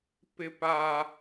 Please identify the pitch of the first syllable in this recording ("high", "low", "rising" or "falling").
high